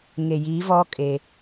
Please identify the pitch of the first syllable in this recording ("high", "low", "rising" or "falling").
low